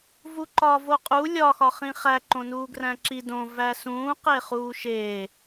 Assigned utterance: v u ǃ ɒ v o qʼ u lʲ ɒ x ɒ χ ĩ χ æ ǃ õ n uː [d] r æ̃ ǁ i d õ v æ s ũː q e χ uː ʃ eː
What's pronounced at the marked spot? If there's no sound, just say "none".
ɡ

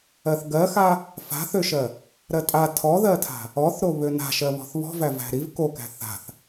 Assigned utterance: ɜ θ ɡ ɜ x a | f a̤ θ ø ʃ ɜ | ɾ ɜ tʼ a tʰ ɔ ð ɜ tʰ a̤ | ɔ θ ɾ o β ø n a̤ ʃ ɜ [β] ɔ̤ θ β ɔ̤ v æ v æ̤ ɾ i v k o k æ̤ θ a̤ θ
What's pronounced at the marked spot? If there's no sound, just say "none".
β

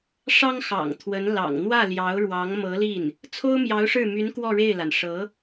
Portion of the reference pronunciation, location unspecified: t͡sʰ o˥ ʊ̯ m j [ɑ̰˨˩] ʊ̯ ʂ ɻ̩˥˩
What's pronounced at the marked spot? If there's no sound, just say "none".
ɑ˧˥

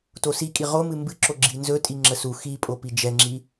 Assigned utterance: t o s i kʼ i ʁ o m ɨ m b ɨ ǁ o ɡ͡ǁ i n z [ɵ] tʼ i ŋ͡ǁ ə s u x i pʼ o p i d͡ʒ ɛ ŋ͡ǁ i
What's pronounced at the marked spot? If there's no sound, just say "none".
ɵ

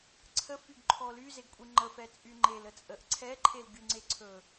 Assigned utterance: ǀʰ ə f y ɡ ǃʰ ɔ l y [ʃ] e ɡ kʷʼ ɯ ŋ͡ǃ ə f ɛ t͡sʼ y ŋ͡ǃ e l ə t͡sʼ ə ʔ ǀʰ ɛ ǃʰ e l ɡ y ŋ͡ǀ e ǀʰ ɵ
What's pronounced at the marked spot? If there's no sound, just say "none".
z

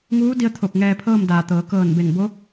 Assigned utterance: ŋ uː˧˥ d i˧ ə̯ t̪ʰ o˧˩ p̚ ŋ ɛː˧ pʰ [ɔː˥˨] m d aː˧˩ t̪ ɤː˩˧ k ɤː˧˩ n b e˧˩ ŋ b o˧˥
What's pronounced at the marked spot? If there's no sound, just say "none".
ɤː˥˨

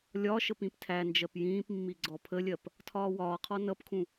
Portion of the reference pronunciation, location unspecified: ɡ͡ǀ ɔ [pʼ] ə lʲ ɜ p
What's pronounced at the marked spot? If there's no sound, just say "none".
pʰ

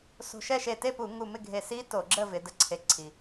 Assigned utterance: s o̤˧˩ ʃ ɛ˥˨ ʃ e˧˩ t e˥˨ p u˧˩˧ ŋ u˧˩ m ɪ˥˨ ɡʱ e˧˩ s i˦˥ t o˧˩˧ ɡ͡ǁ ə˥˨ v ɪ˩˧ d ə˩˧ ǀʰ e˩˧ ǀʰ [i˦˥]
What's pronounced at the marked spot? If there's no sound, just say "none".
i˩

